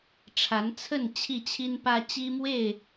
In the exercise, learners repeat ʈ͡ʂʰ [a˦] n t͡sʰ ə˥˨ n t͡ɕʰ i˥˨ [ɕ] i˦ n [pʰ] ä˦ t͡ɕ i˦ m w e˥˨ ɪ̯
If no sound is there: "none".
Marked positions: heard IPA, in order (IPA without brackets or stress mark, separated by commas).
a˨˦, t͡ɕʰ, p